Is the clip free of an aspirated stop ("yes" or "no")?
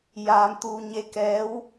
yes